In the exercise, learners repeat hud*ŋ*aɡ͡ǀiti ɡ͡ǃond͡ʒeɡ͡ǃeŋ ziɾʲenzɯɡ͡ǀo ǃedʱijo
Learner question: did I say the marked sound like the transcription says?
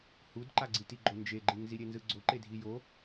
no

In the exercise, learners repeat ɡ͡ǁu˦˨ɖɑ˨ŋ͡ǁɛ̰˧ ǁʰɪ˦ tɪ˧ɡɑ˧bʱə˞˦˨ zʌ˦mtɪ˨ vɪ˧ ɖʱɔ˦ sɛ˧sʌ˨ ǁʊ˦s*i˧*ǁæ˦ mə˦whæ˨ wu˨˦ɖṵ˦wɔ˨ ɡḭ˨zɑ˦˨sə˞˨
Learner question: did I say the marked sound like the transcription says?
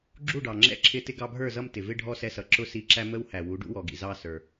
yes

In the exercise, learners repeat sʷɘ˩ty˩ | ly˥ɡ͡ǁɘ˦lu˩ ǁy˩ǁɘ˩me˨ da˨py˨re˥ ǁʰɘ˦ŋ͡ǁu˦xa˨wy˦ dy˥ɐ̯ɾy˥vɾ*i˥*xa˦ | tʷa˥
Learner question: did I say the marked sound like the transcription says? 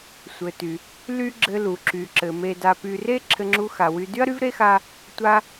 no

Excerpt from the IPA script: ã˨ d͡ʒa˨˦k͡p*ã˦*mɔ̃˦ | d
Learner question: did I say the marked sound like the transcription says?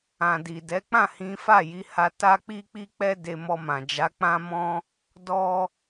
yes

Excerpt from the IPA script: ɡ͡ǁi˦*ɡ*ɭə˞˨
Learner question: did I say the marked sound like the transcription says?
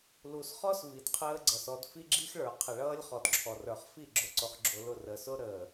no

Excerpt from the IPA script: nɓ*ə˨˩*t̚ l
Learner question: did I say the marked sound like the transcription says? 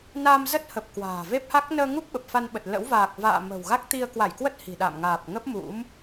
yes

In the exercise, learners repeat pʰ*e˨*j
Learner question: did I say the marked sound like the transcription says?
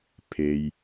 yes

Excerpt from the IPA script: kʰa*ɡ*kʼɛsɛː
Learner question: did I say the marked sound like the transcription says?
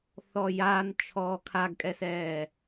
yes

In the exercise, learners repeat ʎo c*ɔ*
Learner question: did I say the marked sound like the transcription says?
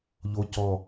yes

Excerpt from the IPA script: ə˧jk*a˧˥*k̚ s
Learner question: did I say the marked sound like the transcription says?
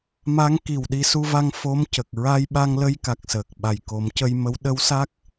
no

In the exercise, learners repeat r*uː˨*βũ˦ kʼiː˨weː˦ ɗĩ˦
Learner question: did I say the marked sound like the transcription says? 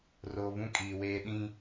no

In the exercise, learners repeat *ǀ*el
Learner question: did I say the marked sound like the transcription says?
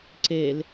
yes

